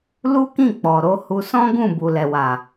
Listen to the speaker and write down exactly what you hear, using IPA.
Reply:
l u˦ k ĩ˦˨ k͡p ɔ˨ ɾ o˨˦ h u˧ s ɔ̃˦ ɡ ũ˦˨ b u˨ l ɛ˨ w a˨

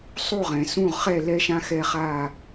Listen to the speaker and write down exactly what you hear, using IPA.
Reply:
sˤ u˥˨ ʁ ɛ̃˩ s ũ˥˨ ʁ χ ɛ˥˨ l ɛ˥ ʃ ã˥ x ɛ˥˨ χ a˥˨

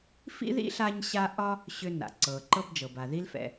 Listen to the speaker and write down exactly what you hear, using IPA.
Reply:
f ḭ˥ ð ḭ˥ ɬ a˧ ɲ ɕ a˧ ʔ ɒ˥ | ɕ ʏ˧ n a̰˩ ǀ ɤ˩ ǃ ɤ˧ b d͡ʒ ɤ˩ b a˩ ð i˧ l f ɛ̰˩

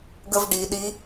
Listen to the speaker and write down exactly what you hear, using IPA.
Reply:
ɡ ə v ɖ i ɗ i

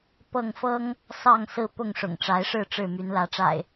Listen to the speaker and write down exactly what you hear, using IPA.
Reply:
p ɤ˥˨ ŋ f ɤ˦ ŋ | s ɑ˥˨ ŋ s ɹ̩˦ p ʊ˥˨ ŋ ʂ ʊ̰˨˩ ŋ ʈ͡ʂ a˨˦ ɪ̯ ʂ ɻ̩˥˨ ʈ͡ʂ ɻ̩˥˨ m y˨˦ n l ä˨˦ ʈ͡ʂ a̰˨˩ ɪ̯

